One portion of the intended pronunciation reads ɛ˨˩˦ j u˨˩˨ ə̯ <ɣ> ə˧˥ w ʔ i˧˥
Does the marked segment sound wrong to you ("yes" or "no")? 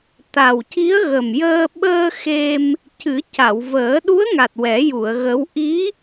no